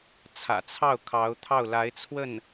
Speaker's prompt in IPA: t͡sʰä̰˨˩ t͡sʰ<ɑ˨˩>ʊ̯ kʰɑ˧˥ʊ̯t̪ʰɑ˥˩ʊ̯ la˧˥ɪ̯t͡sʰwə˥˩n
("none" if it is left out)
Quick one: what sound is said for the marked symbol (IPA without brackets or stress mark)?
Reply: ɑ˥˩